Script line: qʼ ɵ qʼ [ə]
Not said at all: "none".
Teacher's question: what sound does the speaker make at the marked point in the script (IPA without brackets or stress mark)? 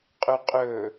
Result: ɵ